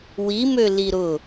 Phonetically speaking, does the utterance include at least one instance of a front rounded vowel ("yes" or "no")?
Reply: yes